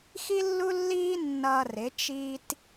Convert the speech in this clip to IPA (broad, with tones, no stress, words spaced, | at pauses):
xi˦lːu˦lːiː˦ nːʌː˧rɪ˨˦ t͡ʃi˦t